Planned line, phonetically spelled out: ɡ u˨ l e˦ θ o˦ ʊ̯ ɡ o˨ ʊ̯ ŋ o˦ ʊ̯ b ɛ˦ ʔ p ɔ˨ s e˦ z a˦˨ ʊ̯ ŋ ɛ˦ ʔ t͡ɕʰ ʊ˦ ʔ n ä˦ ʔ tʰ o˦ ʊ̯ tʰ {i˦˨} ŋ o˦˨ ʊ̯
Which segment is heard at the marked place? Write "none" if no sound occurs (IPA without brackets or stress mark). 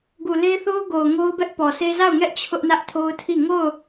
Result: i˦˨